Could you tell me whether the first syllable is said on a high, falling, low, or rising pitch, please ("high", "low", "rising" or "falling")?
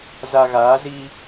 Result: low